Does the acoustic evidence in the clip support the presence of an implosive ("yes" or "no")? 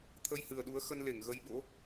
yes